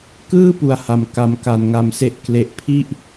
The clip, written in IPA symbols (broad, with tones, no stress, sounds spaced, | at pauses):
k ɯː˥˩ p u˨˩ a̯ h a˧ m k a˧ m k a˧ n ŋ a˧ m s e˦˥ ʔ k l e˦˥ ʔ pʰ i˥˩ ʔ